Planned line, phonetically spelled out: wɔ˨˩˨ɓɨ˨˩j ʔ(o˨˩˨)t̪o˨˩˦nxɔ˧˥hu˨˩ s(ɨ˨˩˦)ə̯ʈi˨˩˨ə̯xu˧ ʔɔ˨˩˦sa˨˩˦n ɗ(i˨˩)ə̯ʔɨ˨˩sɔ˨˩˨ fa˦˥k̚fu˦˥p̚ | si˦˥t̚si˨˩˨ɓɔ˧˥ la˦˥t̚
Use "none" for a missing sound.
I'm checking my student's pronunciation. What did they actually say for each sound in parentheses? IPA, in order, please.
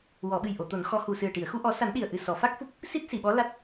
o˨˩˨, ɨ˨˩, i˨˩

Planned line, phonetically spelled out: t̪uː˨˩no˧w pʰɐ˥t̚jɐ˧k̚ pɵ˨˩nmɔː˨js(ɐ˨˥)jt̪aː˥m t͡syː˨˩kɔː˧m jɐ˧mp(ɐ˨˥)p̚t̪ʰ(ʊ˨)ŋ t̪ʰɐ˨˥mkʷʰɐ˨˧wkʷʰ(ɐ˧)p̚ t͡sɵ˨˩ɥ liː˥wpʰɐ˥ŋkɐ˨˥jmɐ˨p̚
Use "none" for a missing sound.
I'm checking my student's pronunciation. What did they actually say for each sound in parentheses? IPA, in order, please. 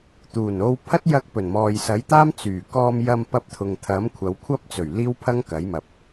ɐ˨˥, ɐ˧, ʊ˨, ɐ˥

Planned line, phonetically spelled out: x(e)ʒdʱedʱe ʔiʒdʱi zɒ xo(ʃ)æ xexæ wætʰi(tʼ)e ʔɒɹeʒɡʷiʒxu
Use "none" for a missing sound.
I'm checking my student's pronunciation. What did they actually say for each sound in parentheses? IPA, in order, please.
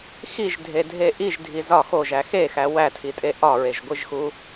i, ʒ, tʼ

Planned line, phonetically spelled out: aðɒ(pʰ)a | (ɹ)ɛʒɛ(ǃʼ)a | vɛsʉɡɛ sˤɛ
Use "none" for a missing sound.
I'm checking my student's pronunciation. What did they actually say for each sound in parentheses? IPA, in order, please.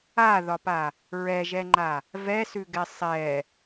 p, ɹ, ŋ͡ǃ

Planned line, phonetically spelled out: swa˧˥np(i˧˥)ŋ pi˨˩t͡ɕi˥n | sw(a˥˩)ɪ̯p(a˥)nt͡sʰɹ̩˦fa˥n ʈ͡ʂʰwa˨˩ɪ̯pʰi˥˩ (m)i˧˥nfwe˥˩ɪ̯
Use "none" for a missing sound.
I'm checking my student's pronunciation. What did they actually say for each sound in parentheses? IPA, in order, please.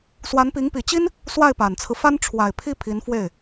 i˧˥, a˥˩, a˨˩, pʰ

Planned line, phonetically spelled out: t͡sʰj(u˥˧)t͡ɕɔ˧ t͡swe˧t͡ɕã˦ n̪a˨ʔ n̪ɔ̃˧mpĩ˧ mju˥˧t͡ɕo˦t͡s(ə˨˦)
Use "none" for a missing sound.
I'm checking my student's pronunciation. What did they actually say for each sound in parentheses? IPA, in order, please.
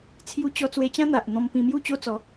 u˧, ɔ˨˦

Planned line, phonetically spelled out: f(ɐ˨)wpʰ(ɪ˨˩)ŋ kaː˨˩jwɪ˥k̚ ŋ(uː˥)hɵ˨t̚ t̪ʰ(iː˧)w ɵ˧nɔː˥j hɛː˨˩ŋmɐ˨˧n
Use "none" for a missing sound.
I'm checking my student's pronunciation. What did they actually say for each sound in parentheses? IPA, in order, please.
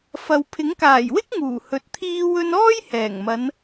ɐ˨, ɪ˨˥, uː˨˩, iː˧

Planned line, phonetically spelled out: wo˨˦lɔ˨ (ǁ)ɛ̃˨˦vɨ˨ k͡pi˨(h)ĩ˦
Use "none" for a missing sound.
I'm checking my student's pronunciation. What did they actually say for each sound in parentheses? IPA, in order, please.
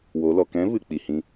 k, h

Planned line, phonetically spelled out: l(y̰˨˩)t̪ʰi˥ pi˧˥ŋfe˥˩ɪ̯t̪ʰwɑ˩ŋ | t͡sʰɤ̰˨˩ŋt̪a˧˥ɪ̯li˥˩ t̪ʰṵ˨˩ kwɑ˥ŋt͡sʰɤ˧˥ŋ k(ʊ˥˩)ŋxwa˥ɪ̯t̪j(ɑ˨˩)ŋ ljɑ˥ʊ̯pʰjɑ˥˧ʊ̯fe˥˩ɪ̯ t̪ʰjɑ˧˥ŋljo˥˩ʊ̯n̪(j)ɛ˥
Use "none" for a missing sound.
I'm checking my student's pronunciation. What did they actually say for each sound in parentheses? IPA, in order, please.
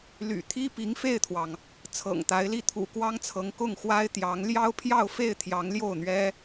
y̰˨˩, ʊ˥˩, ɑ˧˥, ɥ

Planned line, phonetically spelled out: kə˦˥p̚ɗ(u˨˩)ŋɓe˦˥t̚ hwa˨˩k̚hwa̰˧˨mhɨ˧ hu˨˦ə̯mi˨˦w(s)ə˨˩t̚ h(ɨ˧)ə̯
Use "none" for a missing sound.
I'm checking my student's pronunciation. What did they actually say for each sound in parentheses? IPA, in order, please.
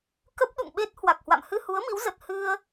ṵ˧˨, z, ɨ˧

